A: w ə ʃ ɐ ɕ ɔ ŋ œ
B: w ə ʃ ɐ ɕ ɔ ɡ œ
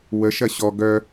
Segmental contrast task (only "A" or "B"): B